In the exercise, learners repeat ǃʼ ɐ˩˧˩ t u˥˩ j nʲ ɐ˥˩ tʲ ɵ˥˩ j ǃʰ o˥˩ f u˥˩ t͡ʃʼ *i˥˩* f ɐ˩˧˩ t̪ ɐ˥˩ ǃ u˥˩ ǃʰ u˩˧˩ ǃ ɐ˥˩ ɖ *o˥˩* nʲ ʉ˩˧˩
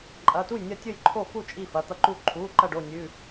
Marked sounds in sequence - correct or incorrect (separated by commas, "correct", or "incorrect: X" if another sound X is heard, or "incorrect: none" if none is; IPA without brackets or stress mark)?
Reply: correct, correct